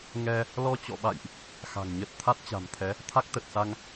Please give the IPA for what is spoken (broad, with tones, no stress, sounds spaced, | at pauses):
ŋ ɛ˧ | l ɔ˧ t͡ɕ ɔ̰˧˨ ɓ a̰˧˨ j ʔ | x a̤˨˩ ŋ ɲ ə˦˥ t̚ t̪ʰ a˦˥ t̚ t͡ɕ a̤˨˩ m t̪ʰ ɛ˨˦ | t̪ʰ a˦˥ k̚ t̪ ə˨˩ t̚ s a˧ ŋ